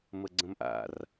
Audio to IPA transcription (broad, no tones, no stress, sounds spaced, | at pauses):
m ə ɡ͡ǀ ə̃ m ʔ a̰ r